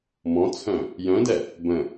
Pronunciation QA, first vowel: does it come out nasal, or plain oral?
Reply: nasal